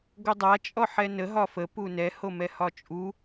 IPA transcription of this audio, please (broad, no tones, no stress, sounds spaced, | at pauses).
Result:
ɡ o dˤ a t͡ʃʼ ɔ ħ ɛ n ə ɦ ɒ f ə p u n ɛ h o m ɛ h ɒ t͡ʃʼ u